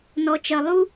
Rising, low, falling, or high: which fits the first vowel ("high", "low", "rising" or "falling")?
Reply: low